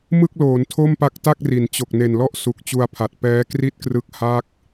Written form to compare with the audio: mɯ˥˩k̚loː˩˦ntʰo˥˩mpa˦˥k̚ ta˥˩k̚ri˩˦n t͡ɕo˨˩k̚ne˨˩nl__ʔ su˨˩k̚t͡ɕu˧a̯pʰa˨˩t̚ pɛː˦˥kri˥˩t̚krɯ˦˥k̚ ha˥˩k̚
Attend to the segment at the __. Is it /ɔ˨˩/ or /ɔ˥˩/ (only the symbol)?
ɔ˥˩